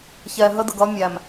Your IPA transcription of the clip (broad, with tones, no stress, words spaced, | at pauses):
çɛ˨ ɦə˦də˨ɡʌ˦ mʲæ˨m